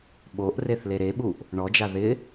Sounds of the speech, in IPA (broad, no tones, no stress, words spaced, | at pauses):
ɓoʔ reθleɾeɓuʔ | ɳɔd͡ʒa ðɪ